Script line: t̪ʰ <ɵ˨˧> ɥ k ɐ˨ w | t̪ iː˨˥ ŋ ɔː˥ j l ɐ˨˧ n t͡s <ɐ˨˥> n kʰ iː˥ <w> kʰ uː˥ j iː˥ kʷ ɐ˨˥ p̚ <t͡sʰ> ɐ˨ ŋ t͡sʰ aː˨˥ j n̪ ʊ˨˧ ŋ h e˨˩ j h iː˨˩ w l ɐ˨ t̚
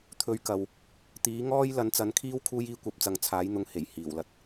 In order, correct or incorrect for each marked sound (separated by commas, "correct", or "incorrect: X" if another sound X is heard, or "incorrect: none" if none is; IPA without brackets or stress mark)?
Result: incorrect: ɵ˧, correct, correct, incorrect: t͡s